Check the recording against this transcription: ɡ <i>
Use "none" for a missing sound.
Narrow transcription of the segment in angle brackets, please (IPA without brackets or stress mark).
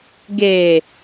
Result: e